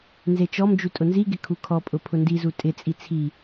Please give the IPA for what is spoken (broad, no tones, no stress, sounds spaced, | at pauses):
n z e t͡ʃ ɔ m d͡ʒ u tʼ ʊ n z i ɡ ɪ kʰ u kʰ ɔ pʼ ʊ pʰ ʊ n d i z u tʼ ɪ t͡sʼ i t͡sʰ i